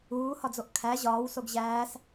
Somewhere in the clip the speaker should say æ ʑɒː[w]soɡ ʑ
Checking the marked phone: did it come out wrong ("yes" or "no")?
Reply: no